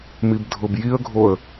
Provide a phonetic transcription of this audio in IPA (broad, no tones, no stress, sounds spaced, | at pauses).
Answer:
m i b dʱ ʊ b j i ə̯ ɡʱ o ə̯